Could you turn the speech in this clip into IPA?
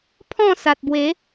pʰ ɔ̃˥˧ s a˨ t̚ b w e˨˦

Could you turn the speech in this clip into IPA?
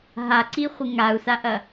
ɦ a ǀ i χʷ ɪ ŋ a u̯ s a ʔ ɐ

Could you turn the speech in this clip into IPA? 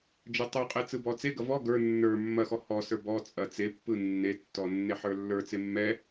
d͡ʒ ə˞ tˤ ə˞ qʼ e t͡s ɯ b ɔ t͡s e ɡ ɐ v ɔ ɡ ə˞ nː ə˞ mː ɐ x ɔ h ɔ s ə˞ b ɔ t͡sʼ ɐ t͡s e pː ɯ nː e tː ɔ nː e ħ ə˞ lː ə˞ t͡s e mː ɛ

